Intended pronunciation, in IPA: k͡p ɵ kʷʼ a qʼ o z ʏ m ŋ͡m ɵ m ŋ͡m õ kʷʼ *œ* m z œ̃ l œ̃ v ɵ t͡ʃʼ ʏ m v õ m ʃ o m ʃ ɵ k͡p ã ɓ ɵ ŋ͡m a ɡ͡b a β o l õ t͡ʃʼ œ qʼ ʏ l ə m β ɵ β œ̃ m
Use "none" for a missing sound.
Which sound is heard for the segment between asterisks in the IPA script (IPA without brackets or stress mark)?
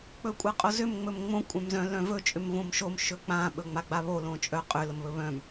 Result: œ̃